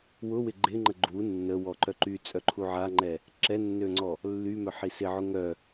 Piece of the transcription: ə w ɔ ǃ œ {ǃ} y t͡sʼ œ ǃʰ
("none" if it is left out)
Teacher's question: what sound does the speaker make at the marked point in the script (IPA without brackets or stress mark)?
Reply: ǃ